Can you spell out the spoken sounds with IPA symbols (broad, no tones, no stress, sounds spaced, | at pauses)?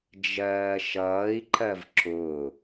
d͡ʒ ɜː ʃ ʌː i̯ ǃ ɜ v ǁ ʊ